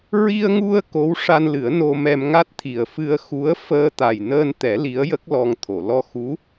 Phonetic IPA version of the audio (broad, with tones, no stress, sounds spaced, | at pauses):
ɹ i˧ ə̯ ŋ u˧ ə̯ k o˧˥ w ʂ a˧ n l ɨ˨˩˦ ə̯ n o˧ m ɛ˧ m ŋ a˦˥ t̚ t̪ʰ i˨˩ ə̯ f ɨ˧ ə̯ x u˧˥ ə̯ f əː˧ t̪ a˨˩ j n əː˧ n t̪ ɛ˨˩˦ l i˧˥ ə̯ j ə˦˥ k̚ l ɔ˧ ŋ t̪ʰ o˨˩˨ l ɔ˧ x u˧˥